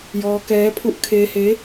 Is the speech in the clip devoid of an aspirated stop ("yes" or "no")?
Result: no